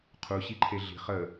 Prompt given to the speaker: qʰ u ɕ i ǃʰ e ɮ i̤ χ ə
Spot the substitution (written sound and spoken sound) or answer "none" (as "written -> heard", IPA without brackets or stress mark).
none